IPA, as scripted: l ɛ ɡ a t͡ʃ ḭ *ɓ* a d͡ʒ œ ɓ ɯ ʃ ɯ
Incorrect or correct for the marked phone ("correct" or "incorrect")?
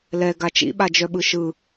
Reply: correct